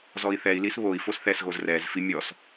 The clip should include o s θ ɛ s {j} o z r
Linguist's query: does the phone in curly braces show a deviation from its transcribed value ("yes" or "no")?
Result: yes